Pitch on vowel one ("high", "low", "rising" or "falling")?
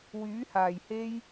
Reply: rising